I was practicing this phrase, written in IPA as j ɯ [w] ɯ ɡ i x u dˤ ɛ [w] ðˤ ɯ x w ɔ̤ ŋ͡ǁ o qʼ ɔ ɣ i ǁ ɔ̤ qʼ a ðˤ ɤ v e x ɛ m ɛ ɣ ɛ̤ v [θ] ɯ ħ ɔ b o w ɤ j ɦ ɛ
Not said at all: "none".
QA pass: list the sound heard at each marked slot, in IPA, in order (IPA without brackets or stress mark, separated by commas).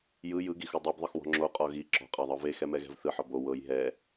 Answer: j, b, θ